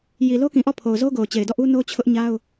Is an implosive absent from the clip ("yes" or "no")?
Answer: yes